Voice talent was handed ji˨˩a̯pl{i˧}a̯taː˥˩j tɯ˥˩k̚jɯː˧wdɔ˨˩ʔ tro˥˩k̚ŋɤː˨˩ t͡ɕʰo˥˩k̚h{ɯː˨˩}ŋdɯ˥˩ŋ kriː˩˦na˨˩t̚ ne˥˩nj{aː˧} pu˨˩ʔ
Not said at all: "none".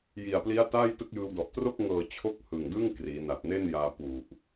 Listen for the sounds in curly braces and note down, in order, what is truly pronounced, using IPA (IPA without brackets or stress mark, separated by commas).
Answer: i˦˥, ɯ˨˩, aː˧